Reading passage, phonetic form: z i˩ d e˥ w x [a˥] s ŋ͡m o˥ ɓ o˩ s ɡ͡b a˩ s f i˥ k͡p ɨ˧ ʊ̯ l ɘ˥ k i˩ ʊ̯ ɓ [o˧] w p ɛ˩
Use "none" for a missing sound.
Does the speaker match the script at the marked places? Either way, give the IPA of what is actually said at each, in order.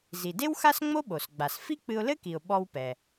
a˥, ɔ˧

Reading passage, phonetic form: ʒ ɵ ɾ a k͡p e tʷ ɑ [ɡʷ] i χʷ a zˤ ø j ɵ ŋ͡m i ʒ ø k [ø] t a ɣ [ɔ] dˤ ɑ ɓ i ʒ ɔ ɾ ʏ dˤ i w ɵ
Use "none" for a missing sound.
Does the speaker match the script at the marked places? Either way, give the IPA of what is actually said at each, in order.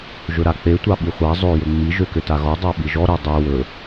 ɓ, ø, ɔ

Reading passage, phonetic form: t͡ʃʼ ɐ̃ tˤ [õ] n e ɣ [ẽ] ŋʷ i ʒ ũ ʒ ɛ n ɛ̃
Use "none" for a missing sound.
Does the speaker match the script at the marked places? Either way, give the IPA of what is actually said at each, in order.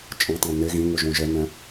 õ, ĩ

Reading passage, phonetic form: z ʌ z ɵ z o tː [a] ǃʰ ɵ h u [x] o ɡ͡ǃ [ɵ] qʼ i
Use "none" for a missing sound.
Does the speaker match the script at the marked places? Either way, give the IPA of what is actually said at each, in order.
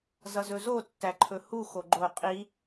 æ, x, o

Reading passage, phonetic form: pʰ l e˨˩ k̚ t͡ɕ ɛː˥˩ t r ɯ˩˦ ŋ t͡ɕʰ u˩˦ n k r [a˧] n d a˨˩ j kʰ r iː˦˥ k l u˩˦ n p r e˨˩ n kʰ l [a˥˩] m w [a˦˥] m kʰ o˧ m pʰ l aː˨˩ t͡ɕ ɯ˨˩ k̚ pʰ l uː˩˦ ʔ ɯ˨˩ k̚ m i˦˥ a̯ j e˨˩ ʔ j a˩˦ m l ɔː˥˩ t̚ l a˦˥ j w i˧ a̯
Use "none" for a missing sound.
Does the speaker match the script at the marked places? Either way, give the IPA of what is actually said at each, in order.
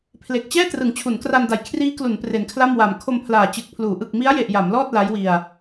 a˧, a˥˩, a˨˩

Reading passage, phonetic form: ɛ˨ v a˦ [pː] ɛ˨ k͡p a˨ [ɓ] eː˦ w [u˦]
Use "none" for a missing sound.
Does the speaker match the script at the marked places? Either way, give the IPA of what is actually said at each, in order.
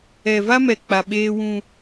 m, ɓ, ũ˦

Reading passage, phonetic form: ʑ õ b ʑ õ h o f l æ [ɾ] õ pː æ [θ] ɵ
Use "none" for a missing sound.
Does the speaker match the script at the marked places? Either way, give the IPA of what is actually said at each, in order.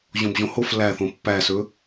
θ, s

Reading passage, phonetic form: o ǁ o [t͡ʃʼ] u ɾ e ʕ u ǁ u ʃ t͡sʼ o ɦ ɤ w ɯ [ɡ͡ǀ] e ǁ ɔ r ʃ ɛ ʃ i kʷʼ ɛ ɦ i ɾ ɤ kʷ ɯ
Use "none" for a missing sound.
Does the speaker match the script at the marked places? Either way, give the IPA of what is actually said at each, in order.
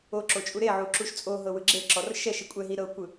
t͡ʃʼ, ɡ͡ǁ

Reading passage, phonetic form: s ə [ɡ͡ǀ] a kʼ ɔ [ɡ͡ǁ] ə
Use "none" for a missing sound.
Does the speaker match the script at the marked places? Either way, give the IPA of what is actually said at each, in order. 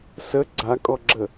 ɡ͡ǀ, ɡ͡ǁ

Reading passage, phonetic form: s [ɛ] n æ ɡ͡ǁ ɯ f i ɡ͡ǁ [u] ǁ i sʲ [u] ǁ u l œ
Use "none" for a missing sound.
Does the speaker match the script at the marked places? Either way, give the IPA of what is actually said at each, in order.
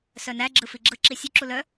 œ, ɯ, u

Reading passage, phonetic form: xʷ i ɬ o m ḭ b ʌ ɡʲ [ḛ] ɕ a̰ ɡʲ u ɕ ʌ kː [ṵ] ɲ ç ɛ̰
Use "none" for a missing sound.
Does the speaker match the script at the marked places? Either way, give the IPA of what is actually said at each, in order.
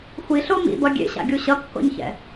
ḛ, o̰

